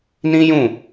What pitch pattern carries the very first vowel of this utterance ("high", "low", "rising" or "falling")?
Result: high